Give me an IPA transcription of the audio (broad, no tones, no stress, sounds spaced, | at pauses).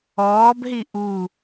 ɔː b ɦ i ʔ u